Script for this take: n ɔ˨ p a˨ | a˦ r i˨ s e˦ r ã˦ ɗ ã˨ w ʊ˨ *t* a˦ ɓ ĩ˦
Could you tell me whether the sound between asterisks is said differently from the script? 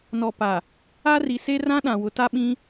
no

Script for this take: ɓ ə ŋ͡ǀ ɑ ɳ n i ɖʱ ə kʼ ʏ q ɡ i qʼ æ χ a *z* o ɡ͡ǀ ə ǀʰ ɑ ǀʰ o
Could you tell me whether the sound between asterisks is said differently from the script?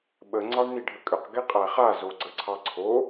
no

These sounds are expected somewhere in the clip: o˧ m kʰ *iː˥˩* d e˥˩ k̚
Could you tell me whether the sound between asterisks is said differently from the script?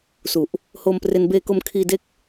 yes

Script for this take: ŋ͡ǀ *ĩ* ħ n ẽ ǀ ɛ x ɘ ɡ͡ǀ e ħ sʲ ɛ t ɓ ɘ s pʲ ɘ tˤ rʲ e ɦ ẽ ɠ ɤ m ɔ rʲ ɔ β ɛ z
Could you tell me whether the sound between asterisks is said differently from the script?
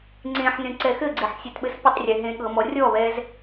yes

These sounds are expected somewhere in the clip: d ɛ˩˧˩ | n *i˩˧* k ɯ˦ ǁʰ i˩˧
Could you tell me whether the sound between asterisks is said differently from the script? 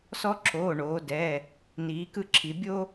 yes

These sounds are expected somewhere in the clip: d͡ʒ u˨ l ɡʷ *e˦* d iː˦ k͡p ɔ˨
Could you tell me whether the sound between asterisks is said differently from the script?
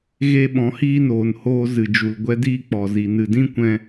yes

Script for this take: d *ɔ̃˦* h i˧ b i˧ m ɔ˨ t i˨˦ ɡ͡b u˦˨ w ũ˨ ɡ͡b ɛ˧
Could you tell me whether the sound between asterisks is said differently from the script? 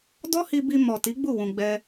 yes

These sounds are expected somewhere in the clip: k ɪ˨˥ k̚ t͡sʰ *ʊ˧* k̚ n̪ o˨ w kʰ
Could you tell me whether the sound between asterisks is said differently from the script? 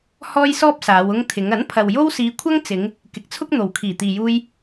yes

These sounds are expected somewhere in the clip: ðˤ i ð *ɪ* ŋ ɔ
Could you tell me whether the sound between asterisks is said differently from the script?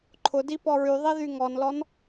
yes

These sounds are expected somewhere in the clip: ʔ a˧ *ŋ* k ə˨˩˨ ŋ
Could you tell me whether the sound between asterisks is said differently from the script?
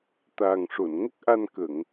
yes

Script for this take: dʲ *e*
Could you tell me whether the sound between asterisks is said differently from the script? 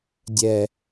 yes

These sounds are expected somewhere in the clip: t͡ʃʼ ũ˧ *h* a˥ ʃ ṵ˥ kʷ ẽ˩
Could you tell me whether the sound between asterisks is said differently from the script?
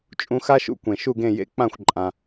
yes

